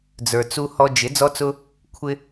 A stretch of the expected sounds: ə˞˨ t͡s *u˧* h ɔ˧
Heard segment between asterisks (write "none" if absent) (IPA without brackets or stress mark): u˧